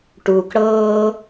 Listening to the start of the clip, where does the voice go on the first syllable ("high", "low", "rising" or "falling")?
low